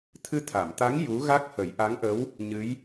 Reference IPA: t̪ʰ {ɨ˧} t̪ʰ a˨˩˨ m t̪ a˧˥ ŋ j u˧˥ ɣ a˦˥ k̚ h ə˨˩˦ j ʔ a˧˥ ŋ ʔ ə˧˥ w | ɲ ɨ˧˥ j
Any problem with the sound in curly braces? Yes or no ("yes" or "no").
no